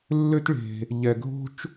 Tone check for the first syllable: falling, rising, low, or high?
high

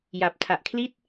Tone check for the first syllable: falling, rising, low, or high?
low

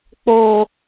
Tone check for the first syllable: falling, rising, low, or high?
low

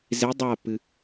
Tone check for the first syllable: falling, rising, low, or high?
rising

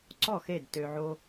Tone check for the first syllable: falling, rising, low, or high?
falling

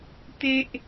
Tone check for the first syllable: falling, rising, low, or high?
high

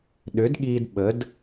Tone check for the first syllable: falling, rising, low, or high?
rising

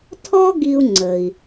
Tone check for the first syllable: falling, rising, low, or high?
high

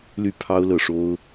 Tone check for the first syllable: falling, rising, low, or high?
falling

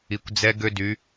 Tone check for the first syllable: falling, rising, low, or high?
low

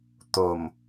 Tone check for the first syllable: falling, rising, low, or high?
low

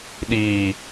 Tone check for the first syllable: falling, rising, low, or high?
low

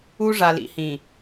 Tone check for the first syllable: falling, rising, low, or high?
high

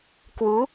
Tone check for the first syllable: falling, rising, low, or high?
rising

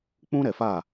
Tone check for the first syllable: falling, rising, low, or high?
high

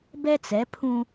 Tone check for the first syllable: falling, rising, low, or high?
high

